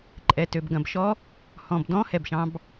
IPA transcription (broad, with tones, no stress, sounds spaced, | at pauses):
ǃʼ ɛ˨ t ø˨ b ɡ ɐ̃˨ b ʃ ɔ˦˥ | h ɔ̃˨ b d ɔ̃˦˥ h ɛ˨ b ʃ ɑ̃˦˥ b